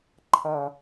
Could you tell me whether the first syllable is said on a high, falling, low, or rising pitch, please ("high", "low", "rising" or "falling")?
low